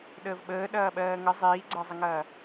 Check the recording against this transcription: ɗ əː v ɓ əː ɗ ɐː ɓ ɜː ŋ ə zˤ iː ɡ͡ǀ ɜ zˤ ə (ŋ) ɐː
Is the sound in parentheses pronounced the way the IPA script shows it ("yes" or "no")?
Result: yes